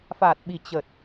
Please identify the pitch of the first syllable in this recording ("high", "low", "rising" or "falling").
low